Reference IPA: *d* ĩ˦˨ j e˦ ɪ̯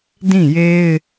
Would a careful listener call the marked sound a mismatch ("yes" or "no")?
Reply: no